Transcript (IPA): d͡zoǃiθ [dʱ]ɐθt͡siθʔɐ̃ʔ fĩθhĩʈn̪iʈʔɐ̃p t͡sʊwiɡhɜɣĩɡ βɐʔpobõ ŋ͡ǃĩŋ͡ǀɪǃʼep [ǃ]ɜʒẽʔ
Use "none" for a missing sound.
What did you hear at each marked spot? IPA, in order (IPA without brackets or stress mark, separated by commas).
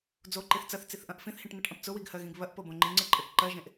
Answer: t͡s, ǃ